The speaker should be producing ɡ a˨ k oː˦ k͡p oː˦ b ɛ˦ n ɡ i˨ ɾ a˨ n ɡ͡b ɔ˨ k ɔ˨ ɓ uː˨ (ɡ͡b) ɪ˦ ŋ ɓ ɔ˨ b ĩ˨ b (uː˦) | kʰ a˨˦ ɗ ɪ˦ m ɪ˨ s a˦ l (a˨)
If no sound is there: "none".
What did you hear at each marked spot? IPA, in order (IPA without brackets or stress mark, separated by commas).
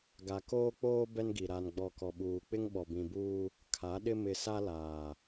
k͡p, uː˦, aː˨